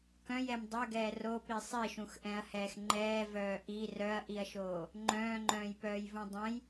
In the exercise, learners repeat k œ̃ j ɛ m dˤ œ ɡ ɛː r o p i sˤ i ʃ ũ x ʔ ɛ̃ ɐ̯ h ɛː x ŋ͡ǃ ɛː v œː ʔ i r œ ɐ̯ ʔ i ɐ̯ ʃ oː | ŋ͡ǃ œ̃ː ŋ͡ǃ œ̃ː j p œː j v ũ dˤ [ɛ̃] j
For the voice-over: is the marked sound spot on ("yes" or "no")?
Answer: yes